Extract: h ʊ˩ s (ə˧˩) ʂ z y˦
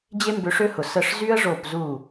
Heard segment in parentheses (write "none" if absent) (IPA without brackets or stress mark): ə˧˩